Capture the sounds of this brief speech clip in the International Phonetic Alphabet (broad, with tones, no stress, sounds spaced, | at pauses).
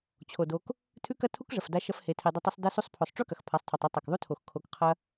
t͡ɕʰ o˨ d o˧ k | tʰ ʉ˦ k ɐ˦ tʰ u˦ k ʐ ɐ˨ f d a˧ ʃ ɐ˧ f h e˧ tʰ i˧ dˤ o˦ tˤ ʉ˦ sˤ d ɐ˧ s u˧ sˤ pʰ o˨ sˤ ʈ͡ʂ ʉ˦ k ɐ˨ x pʰ a˨˦ sˤ tʰ u˨ tˤ i˦ tˤ a˨ k ðˤ u˦ tʰ o˨ x kʰ o˧ k qʰ ɐ˦